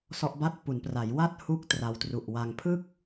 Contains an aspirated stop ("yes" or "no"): yes